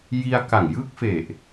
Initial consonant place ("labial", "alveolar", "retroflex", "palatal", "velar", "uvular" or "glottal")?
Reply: palatal